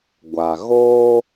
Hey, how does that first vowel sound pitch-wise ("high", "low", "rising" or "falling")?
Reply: low